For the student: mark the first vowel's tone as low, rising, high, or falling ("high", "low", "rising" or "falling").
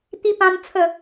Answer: high